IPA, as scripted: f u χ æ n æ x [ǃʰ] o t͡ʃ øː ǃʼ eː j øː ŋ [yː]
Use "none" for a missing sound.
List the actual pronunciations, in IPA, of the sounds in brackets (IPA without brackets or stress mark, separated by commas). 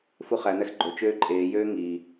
ɡ͡ǃ, iː